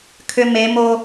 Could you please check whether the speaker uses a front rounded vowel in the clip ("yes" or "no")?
yes